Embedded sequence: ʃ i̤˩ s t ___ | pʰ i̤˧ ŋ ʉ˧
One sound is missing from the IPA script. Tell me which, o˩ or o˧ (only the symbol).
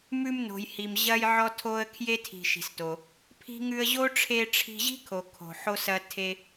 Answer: o˩